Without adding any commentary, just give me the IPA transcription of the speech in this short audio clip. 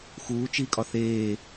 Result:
x uː t͡ʃ iː kʼ ɒ θ eː

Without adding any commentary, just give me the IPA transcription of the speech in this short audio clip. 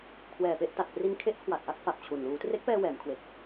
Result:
kʰ w ɛː˨˩ p e˥˩ ʔ t a˨˩ t̚ p r i˧ n kʰ e˦˥ ʔ kʰ w a˨˩ t̚ ʔ a˥˩ k̚ f a˨˩ p̚ t͡ɕʰ u˨˩ n l uː˩˦ t r e˦˥ k̚ p ɛː˧ w ɛː˩˦ m kʰ w e˨˩ k̚

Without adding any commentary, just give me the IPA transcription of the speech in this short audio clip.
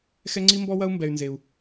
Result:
x ɛ˦ ŋ͡ǀ i˦ m b ɔ˦ w ɐ˦ u̯ m b ɛ˧ y̯ n z e˧ u̯

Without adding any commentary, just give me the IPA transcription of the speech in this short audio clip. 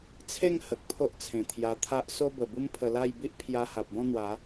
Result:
t͡sʰ e˥˧ ŋ h ə˨ k̚ pʰ o˦ ʔ t͡sʰ ẽ˨˩ t̪ʰ j a˧ t̪ʰ a˦ ʔ s o˦ b ə˨˩ b u˦ m pʰ ə˧ l a˥˧ j b i˦ ʔ pʰ j a˧ h a˨ p̚ b ɔ̃˥˧ n̪ w a˨˦

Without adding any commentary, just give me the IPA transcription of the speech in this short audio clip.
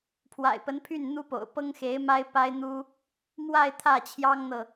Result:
pʰ w a̰˨˩ ɪ̯ p ə˧˥ n pʰ y˥˩ n n̪ u˥ p o̰˨˩ ʊ̯ p ɤ˥ ŋ x e˧˥ ɪ̯ m a˥ ɪ̯ p a˥ ɪ̯ n̪ u˥ | m w a˥˧ ɪ̯ t̪ʰ ä˥˩ t͡ɕʰ j ɑ˥ ŋ n̪ ɤ˨

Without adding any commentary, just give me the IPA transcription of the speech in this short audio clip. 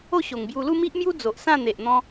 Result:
o˥˧ ɕ o˨˩ ŋ b j u˧ l u˥˧ m i˦ ʔ m j u˦ d͡z o˨ ʔ s ã˥˧ n̪ e˨ ʔ n̪ ɔ̃˧

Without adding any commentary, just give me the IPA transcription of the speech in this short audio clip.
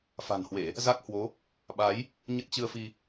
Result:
f a̤˨˩ n h w e˧˩˨ | z a˦˥ k̚ h w o˨˦ | ɓ a˨˦ j | ɲ ə˦˥ t̚ t͡ɕ ɨ˧ ə̯ f i˧

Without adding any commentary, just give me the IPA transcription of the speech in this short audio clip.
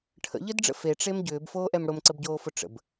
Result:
ʈʰ ə̰ ʎ ə d ɖ͡ʐ ə̰ f e ʈ͡ʂ e m ɟ ʏː b f oː ʔ ɛ m ɽ ʊ m ǀ ə b ɟ oː f ʊ ʈ͡ʂ ə̰ b

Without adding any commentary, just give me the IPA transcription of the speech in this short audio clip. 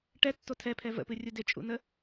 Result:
ʈ ɛ tː o tʰ ɛ pʰ ɛ v ə̰ p ɨ rʲ u d ɪ t͡ʃʼ ṵ n ə

